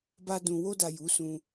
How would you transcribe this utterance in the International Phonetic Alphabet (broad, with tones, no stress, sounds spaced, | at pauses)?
b a˧ d ũ˨ w o˧ d a˨ j u˨˦ s ũ˧